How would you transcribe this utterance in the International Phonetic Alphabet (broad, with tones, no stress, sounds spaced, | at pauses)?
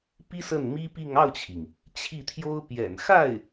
p i˥ s ə˥˩ n m i˥ p i˥˧ ŋ ɑ˥˩ ʊ̯ t͡ɕʰ i˩ ŋ | t͡ɕʰ i˥˩ t̪ʰ j o˥ ʊ̯ p j ɛ̰˨˩ n x a˥˩ ɪ̯